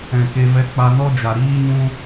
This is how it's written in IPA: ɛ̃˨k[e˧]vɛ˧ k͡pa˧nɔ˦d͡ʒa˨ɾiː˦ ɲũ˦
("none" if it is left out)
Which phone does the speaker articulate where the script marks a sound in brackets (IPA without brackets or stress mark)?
e˧